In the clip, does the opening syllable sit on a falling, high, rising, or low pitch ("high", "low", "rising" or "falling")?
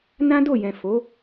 high